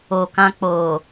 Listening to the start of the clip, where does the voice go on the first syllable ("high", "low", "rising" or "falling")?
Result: low